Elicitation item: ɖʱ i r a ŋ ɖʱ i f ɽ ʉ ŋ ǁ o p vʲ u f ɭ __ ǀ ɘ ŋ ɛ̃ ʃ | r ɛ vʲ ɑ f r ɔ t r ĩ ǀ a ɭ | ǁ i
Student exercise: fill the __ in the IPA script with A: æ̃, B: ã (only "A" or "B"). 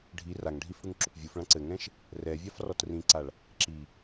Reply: B